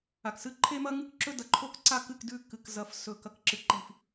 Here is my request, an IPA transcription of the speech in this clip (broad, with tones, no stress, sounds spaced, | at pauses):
a˨ k s ɨ˦ ǃʰ e˦ m ɐ˦ ŋ ɨ˦ k ǁ ɵ˦ d ɐ˨ ǃʰ o˦ k ǀ a˦ k ɨ˦˨ k d ʉ˦˨ k ɨ˨ k z ɐ˨ f s ɵ˨ k ɐ˨ k ǁ ɨ˨ ǃ i˨ f